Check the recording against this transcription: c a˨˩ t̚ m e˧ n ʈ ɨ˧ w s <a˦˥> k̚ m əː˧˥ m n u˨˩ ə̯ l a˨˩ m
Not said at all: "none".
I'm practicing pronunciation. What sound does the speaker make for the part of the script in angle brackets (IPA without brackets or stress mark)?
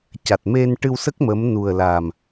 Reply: ə˦˥